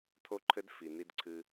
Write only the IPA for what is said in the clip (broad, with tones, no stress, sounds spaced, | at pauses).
t̪ʰ o˦ ǃʰ ɘ˦ d f i˨ n̪ i˦ d ǀʰ ɨ˦